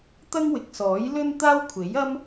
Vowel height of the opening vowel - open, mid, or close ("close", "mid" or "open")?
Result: open